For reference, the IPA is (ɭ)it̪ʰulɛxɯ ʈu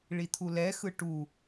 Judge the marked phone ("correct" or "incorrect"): correct